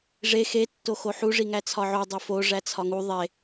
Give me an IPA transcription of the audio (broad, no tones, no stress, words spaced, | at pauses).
ʐe xe tːoxoħu ʐiŋæt͡sʰɒʕo dˤifo ʐæt͡sʰɒŋu ðˤe